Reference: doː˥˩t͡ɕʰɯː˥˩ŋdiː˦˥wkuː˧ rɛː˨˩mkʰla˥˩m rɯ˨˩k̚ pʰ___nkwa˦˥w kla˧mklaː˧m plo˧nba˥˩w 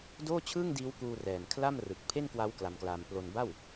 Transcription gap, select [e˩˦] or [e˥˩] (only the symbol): e˥˩